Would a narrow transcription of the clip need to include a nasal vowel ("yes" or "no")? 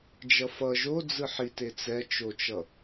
no